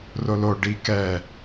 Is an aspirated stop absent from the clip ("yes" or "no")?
yes